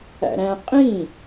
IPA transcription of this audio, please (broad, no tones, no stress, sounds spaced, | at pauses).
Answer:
æ̰ ɾ æ̃ qʼ ĩ